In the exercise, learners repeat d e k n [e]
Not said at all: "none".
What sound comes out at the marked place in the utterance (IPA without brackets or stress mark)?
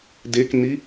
i